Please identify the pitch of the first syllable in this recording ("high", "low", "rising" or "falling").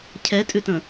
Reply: rising